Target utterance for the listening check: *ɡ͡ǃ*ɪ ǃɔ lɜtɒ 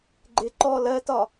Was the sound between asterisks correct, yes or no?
yes